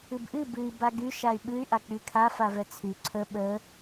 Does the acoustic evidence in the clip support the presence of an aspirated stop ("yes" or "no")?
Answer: yes